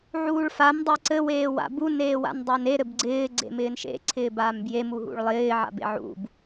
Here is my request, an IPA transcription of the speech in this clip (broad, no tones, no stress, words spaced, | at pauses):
ʕuːɭfam dˤeǀɘ weːwa̰bu neːwa̰ndˤɪːne ɾɘbɡ͡ǀɪː ɡ͡ǀḛmɪːnʃḛ ǀʰɪːbaːmbje muɦṵɭlˠɪː ʕa̰bḛʕṵb